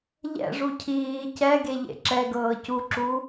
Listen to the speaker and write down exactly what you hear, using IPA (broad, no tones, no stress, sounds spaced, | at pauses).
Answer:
ʎ ɛ̰ ʐ u cʰ iː c ɛ ɡ e ʎ ḛ ǁ ɛ ɡ ɤː c u ǁ u